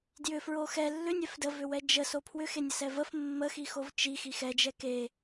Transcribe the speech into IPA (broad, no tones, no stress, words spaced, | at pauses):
djʏfɹo xɛ lːʏnʲɛf dəvʏwɛ d͡ʒəso pʰwʏxenʲəsɛ vəf mːəxixov t͡ʃixix ɛd͡ʒɛ ke